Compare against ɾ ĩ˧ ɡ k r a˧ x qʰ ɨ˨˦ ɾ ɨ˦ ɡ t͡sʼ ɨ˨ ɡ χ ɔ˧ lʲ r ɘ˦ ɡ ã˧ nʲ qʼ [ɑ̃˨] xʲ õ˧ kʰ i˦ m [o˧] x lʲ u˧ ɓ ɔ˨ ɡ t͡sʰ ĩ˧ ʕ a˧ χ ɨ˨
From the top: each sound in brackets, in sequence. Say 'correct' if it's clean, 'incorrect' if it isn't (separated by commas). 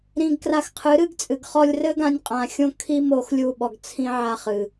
incorrect, correct